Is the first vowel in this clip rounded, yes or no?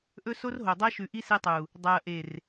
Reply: yes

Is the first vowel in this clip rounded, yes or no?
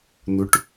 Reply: yes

